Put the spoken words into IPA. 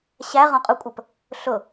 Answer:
ɕ æ ʁ ɔ̃ qʼ ʊ kʷʼ ə p | ɬ ʊ

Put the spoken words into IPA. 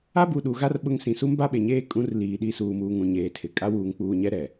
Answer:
a˦ b u˨ ɗ u˨ ɣ a˦ r ɓ ʊ˦ ŋ s ĩ˨ s u˦ m b a˦ ɓ e˨ ɲ eː˦ kʼ ũ˨˦ r l iː˨ ɗ i˦˨ s uː˨ m uː˨ ŋ ũ˨ ɲ eː˨ tʰ ɪ˨ kʼ a˦ w uː˨ ŋ k͡p uː˨ ɲ ɛ˦ ɾ ɛ˨

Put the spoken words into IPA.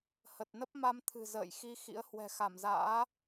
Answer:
h ə˨˩ t̚ n ə˦˥ p̚ m a˧ m t̪ʰ ɨ̤˨˩ z ə̰ː˧˨ j x i˧ x ḭ˧˥ ə̯ h w ɛ̤˨˩ x a˧˩ m z a̰ː˧˥

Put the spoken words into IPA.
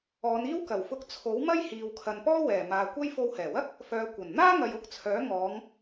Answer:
ɔː˨˧ n iː˥ w k ɐ˨˩ w f ʊ˧ k̚ t͡sʰ o˨˥ w m ɐ˥ j h iː˨ w kʰ ɐ˨ n p ɔː˥ w ɛː˨˩ m aː˨ kʷ ɐ˥ j f o˧ w h ɛː˨˩ w ɐ˥ k̚ | f œː˨˧ kʷ ɐ˨˩ n n̪ aː˥ ŋ ɐ˨ j ʊ˨˥ k̚ t͡sʰ œː˨˥ ŋ ɔː˨˧ ŋ

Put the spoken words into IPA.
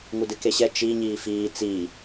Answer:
ŋ u d ɨ k e ɕ ɛ t͡ʃ i ɲ iː f iː t͡s i

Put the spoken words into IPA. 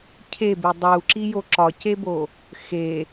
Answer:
cʰ e b e dˤ u ǁ i j o ǁ ɒ c e b o | x e

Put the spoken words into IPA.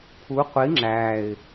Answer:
pʰ u qʷ i ŋ͡ǁ æ ɪ̯

